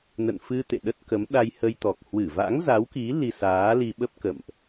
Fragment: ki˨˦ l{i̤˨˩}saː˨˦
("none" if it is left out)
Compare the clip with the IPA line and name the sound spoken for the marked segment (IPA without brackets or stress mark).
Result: i˧